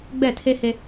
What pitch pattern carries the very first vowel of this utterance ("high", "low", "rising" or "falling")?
falling